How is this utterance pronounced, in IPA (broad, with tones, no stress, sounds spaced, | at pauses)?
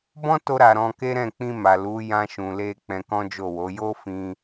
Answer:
b ɔ̃˦ t o˧ ɾ a˨ ɾ ɔ̃˧ k e˦ ɾ ɛ̃˦˨ k͡p ĩ˧ m a˨ l u˨˦ j ã˧ ʃ ũ˨ l e˧ k͡p ɛ̃˧ k ɔ̃˦ d͡ʒ o˦˨ w o˨˦ j o˦ f ĩ˧